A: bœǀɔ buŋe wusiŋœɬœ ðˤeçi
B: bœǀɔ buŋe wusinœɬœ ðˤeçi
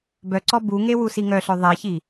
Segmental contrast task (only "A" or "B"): A